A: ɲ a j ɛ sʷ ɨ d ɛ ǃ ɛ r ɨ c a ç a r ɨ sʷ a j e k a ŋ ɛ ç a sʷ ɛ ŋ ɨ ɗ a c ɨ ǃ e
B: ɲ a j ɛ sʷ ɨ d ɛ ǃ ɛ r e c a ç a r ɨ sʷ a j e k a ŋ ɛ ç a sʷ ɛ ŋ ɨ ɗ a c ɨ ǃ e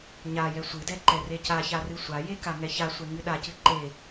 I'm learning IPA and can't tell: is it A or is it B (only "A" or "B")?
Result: B